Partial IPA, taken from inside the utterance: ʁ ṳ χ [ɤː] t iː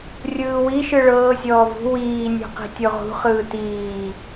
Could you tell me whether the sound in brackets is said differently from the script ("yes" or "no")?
yes